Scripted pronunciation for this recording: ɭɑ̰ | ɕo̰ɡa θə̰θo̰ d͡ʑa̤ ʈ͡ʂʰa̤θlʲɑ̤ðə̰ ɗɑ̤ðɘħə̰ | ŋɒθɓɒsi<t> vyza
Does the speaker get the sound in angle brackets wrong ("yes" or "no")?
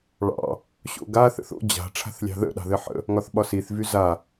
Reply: yes